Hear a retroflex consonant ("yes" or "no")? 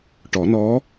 yes